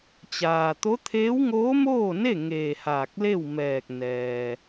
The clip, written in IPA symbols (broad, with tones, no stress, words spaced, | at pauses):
t͡ɕaː˩t̪o˧˥ t̪ʰeː˧˥wŋoː˧˥moː˥˨ne˥˨ ŋeː˧˩haː˧˩k̚le˥˨wmɛː˧˩k̚ nɛː˩